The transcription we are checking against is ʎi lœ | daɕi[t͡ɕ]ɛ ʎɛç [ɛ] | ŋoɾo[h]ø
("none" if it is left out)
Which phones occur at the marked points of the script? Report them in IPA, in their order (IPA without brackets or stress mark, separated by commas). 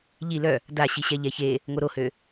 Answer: ɕ, e, h